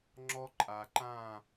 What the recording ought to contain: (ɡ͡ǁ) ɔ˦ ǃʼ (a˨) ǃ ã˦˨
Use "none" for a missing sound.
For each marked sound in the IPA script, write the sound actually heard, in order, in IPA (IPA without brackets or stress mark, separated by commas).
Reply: ŋ͡ǁ, a˨